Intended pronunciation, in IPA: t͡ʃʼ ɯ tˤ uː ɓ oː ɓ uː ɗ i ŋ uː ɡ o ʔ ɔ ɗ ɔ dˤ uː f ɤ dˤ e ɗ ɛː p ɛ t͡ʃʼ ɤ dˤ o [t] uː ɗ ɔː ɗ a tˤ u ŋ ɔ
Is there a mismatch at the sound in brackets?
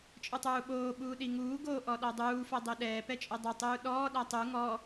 yes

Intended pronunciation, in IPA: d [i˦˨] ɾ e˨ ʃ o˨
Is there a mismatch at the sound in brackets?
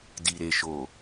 yes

